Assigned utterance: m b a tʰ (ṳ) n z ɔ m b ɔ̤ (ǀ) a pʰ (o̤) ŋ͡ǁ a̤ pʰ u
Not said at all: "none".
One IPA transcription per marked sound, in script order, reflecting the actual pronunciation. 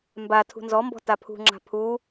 ṳ, t, ṳ

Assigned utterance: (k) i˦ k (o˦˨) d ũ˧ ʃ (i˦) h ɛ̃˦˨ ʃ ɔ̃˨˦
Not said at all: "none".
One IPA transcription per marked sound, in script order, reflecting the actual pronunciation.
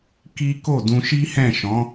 k, o˦˨, i˦

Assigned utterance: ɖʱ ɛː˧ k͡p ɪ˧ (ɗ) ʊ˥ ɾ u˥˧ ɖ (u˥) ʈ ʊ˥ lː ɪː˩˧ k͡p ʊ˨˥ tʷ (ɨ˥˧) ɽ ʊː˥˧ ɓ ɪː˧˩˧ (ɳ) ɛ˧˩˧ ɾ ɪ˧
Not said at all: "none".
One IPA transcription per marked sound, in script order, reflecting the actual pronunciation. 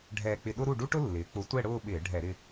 ɗ, u˥, ɛ˥˧, ɖʱ

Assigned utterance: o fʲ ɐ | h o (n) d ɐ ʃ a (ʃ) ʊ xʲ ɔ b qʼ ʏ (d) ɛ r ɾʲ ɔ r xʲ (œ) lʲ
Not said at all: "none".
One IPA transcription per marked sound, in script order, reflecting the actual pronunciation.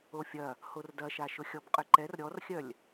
r, ʃ, ǃ, œ

